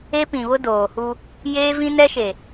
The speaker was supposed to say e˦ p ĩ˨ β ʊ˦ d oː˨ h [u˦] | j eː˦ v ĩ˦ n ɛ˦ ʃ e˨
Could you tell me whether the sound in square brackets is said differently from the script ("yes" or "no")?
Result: no